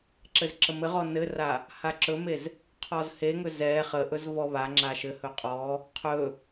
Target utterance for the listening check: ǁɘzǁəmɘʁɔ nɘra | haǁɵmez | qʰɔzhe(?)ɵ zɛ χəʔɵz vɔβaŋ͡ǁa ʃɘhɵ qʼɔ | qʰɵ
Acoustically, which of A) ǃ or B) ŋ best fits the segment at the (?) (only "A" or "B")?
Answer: B